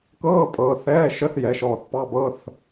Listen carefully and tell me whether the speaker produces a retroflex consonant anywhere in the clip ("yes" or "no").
no